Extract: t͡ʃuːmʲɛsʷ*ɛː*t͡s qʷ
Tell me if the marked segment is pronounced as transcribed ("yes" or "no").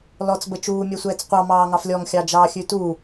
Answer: yes